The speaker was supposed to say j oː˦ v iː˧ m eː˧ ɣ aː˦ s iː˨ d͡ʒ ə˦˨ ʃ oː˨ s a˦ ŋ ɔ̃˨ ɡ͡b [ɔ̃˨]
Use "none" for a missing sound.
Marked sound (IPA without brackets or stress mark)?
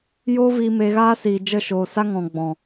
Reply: ɔ̃˨